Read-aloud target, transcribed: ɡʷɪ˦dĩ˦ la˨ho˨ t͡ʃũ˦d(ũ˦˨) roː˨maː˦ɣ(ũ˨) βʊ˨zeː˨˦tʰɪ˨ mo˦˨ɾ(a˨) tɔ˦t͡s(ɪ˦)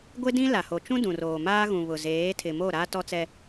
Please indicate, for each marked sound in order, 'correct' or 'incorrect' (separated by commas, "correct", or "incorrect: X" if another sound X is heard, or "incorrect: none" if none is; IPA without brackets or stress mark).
incorrect: ũ˨, correct, incorrect: a˦, incorrect: ɛ˦